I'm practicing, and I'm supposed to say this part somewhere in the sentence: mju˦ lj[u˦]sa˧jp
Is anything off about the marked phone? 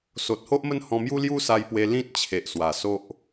no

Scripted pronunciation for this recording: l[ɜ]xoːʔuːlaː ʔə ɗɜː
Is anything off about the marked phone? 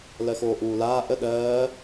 no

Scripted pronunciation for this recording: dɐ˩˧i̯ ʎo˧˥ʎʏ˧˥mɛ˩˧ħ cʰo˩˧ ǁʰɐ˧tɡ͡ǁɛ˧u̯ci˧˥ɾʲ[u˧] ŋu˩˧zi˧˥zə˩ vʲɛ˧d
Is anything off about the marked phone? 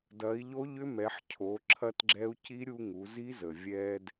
no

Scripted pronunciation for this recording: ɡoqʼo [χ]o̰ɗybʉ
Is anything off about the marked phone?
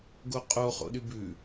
no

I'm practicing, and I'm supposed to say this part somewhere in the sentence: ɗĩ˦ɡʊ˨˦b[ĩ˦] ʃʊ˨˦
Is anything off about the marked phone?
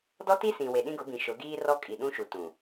yes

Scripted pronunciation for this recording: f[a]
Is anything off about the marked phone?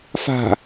yes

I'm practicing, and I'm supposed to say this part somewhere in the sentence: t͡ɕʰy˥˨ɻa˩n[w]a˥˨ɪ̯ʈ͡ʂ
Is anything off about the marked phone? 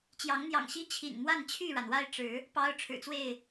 no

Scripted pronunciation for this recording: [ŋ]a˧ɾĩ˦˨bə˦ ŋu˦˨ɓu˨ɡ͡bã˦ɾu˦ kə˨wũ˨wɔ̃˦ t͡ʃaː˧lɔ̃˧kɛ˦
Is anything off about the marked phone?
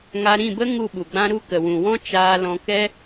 no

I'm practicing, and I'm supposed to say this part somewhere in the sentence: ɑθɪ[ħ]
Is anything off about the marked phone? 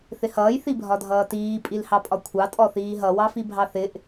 yes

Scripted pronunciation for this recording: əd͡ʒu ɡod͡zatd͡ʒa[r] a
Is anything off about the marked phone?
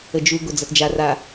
no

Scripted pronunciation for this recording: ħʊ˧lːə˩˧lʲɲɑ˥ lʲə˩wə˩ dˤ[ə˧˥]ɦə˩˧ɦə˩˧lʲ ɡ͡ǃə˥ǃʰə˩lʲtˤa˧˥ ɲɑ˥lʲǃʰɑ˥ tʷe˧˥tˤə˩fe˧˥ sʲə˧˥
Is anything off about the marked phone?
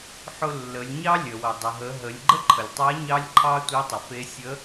yes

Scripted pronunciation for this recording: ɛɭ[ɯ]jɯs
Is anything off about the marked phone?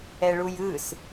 yes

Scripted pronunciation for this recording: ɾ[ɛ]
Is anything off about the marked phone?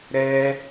no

